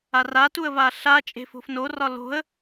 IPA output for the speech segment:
a r a t u ə̯ v a ɬ a t͡ʃʼ e̤ f o̤ f n o r ɒ l o̤ ə̯

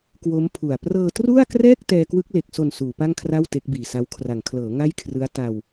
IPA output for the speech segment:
k w o˦˥ m pʰ u˨˩ a̯ p r ɤː˧ t r u˥˩ a̯ k r ɛː˥˩ k̚ t ɛː˧ k w ɯ˦˥ k̚ l e˨˩ k̚ s o˨˩ n s uː˩˦ p a˥˩ ŋ kʰ r a˥˩ w t e˦˥ k̚ b iː˨˩ s a˦˥ w kʰ r a˩˦ ŋ kʰ l ɤː˩˦ ŋ a˥˩ j kʰ r ɯ˦˥ a̯ t a˧ w

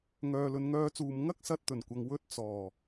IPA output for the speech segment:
ŋ œː˨ l ɵ˨˧ n ŋ œː˧ t͡s uː˨ m ŋ ɐ˥ k̚ s ɐ˧ t̚ t̪ ɵ˨˩ n kʷ ɐ˨ ŋ w ɵ˥ t̚ t͡s ɔː˨˩

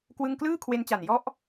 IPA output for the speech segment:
k w ɯ˥˩ ŋ k l ɯː˥˩ kʰ w e˧ n t͡ɕ a˨˩ n j ɔ˦˥ ʔ

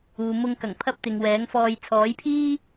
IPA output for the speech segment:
uː˨ m ʊ˧ ŋ k ɐ˨˩ ŋ pʰ ɐ˥ p̚ t̪ ɪ˨ ŋ w ɛː˨˥ ŋ f ɔː˧ j t͡sʰ ɔː˨˥ j pʰ iː˥

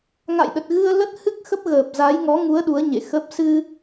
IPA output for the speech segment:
ŋ a̰˧˨ j ɗ ə˨˩ t̚ ɣ ɨ˧ ə̯ l ə˦˥ t̚ h ɨ˦˥ k̚ x ə˦˥ p̚ ɣ əː˨˩ p̚ z a˨˦ j ŋ ɔ˨˦ ŋ u˨˦ ə̯ ɗ u˨˦ ə̯ ɲ ḛ˧˨ x ə˦˥ p̚ s ɨ˧

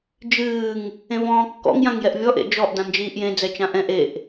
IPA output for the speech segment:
d͡ʒ ɨː ŋ | ẽ v ɔ̃ː kː ɔ̰ ŋ j ã ŋ j ɛ ʔ vʲ ɔ ʔ ḛ d͡ʒ ɔ ʔ d ã n d͡ʒ iː ʔ j ẽ d͡z ɛ t͡ʃ ã ʔ ɛ̃ ʔ e ʔ

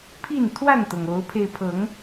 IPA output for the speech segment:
pʰ i˥˨ n t̪ʰ w a˥˨ n t̪ ɤ˩ ŋ o˨˦ ʊ̯ pʰ e˧ ɪ̯ pʰ ɤ˨˦ ŋ

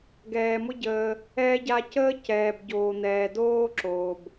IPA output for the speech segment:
ɡ ɛː˨ m ʊ˦ ɟ əː˧ | ɛ˦ ɟ a˦ c əː˦ c ɛː˨ b ɟ oː˨ n̪ ɛː˨ d oː˦ ǁ oː˨ b

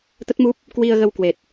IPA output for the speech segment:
t̪ ə˦˥ t̚ m u˦˥ p̚ | k w i˧ ə̯ ɣ ə˧ w k w e˨˩ t̚

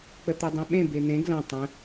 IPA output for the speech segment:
k͡p ə t̪ u dˤ ẽ ɓ ẽ b e n̪ ẽ ɡ l ɐ̃ tˤ ə̃

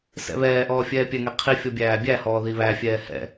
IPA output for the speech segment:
s ɛ̰ β ɛː ʔ ɔː fʲ ɛː pʲ ɛ ŋ ɛ qʰ i fʲ ɔ bʲ æː bʲ æ h ɔː ð i β æ fʲ ɛː h ɛ̰

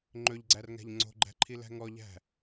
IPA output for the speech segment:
ŋ͡ǃ ɵ ʎ ɡ͡ǀ æ r ŋ æ̤ ʎ ŋ͡ǀ o̤ ɡ͡ǃ æ̤ ǃʰ i l æ̤ ŋ ɔ ʎ æ̤

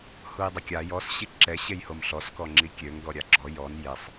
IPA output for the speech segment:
h u j dˤ ə kʲ a j ɔ s ɕ i ǁ ɛ ɕ e j h o m ɬ ɔ s k ɔ ŋ͡ǁ i kʲ ø ŋ ɡ ɔ ɾʲ a ɡ͡ǁ ɔ j ɔ n j e sˤ

